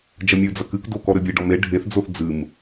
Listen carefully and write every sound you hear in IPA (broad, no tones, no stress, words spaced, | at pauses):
d͡ʒɐmʲɨd͡zɐ kɨkdo kɔɾɘbʲeɖɔm e ɖʱeθd͡zoθ d͡zɨm